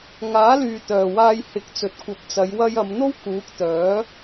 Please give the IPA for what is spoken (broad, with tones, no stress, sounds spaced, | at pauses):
ŋ aː˨˥ l yː˨ t̪ œː˨ w aː˧ j h ɪ˨˥ k̚ t͡s ɵ˨ t̚ kʷ ɐ˨˥ p̚ t͡s ɐ˨˧ j w ɐ˧ j ɐ˨˧ m n̪ o˥ w k uː˨˥ k̚ t̪ œː˨˥